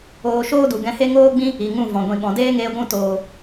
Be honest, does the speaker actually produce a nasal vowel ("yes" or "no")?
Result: yes